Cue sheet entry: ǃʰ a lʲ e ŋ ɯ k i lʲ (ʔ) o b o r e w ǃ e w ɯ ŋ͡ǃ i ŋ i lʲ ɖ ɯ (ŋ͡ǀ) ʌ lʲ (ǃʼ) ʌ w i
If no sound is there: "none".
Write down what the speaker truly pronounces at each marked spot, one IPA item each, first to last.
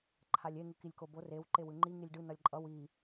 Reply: k, n, ǃʼ

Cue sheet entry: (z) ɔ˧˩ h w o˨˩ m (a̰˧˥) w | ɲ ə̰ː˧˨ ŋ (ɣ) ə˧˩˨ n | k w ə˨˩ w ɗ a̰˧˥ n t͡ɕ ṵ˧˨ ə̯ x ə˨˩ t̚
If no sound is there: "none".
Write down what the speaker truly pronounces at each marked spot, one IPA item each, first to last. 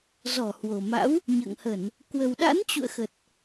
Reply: z, a̰˧˥, h

